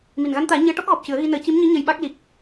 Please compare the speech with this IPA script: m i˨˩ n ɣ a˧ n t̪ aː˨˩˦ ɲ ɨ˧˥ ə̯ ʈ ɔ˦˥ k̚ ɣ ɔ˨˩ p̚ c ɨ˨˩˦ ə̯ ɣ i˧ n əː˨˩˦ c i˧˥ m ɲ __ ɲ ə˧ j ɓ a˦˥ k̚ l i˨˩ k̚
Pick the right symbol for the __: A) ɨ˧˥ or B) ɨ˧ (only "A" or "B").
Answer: A